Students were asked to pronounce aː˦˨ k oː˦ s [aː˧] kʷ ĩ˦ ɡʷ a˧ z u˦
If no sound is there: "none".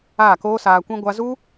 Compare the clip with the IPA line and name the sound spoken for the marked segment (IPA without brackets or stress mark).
aː˧